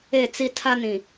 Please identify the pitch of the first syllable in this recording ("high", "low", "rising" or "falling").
falling